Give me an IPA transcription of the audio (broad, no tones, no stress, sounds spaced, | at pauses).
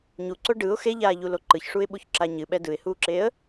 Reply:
ɲ u ǀ o ɖ ɯ ʊ̯ x e ʎ aː ʎ u l o ǃ ɯ ç ʂ u ɪ̯ ɓ u ç ǁ a ɲ ɨ ɓ ɛ d ɯ ɪ̯ h uː ǁ eː ə̯